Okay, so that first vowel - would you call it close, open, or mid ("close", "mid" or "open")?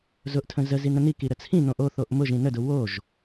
close